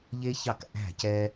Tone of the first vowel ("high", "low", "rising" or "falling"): high